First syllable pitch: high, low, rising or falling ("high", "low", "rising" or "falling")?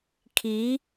rising